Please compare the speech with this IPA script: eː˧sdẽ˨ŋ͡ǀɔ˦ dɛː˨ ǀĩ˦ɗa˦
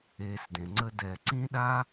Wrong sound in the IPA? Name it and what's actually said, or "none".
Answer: ɔ˦ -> ə˦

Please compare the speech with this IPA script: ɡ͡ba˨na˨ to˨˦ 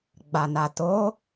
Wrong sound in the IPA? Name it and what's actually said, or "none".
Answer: none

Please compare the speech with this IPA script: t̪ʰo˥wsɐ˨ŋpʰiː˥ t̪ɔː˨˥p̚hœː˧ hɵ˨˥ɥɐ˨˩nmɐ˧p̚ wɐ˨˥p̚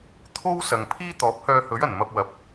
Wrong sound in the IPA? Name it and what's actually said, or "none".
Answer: none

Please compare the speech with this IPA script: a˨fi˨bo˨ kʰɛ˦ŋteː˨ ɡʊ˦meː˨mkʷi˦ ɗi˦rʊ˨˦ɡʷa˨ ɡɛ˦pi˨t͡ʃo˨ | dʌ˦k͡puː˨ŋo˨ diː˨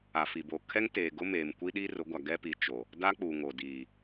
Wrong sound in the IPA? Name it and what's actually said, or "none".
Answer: ʌ˦ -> a˦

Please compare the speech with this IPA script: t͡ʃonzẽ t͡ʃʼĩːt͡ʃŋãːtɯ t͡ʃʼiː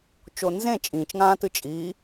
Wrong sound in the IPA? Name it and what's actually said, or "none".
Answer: none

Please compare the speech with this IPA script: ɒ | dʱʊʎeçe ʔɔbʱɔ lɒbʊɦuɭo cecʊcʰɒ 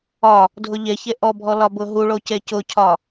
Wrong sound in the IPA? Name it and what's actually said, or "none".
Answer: none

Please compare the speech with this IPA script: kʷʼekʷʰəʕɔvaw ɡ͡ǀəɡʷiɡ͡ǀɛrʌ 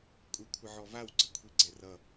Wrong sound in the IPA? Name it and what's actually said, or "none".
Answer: ɡʷ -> kʷʰ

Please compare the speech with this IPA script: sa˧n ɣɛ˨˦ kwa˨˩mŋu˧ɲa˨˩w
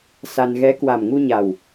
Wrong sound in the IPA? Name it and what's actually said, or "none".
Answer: none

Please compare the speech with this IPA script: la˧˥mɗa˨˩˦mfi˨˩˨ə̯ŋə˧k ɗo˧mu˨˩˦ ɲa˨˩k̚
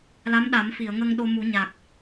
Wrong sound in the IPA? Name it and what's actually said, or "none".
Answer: k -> ŋ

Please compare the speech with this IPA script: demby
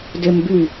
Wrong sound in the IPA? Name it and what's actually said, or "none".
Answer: none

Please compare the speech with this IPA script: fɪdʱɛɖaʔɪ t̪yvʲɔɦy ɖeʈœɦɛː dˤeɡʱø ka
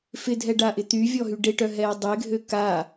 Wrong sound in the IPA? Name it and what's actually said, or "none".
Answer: none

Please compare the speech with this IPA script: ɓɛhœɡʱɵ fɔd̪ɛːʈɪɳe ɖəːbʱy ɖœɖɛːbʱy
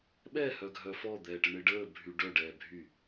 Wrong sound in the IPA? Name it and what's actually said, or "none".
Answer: ɵ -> œ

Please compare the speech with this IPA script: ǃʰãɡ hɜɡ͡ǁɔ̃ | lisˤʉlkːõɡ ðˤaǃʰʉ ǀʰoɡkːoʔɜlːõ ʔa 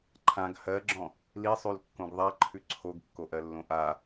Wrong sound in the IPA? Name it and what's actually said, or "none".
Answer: none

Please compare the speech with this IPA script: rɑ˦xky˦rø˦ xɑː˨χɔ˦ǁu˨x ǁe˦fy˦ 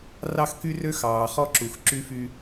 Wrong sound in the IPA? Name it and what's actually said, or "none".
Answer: e˦ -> y˦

